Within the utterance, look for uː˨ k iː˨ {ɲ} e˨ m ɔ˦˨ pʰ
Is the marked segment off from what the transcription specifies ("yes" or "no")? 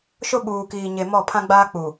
no